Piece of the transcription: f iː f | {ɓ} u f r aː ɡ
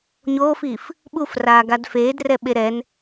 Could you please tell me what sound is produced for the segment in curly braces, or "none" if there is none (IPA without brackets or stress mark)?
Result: ɓ